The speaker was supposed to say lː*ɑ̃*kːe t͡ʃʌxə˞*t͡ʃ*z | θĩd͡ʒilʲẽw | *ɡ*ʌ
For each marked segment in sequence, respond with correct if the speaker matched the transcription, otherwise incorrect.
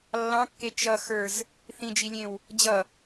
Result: correct, incorrect, incorrect

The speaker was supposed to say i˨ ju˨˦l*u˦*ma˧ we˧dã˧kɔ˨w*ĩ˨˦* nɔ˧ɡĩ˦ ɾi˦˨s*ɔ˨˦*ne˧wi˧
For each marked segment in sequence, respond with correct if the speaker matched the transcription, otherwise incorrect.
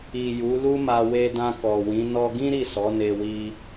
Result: correct, correct, correct

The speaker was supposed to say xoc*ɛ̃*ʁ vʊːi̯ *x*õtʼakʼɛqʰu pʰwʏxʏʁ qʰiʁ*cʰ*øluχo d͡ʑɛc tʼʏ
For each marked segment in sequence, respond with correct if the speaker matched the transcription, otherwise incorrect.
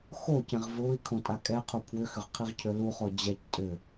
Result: correct, incorrect, correct

